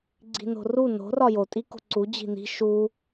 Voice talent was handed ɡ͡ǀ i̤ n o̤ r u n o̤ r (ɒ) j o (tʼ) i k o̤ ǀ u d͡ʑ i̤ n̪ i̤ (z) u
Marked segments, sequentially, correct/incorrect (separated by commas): correct, correct, incorrect